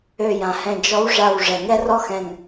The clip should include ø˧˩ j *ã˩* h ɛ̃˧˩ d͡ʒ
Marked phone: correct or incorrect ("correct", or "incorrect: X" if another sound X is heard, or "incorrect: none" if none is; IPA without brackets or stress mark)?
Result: correct